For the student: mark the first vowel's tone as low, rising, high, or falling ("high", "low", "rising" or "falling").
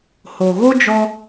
low